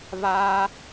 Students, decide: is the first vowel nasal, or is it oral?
oral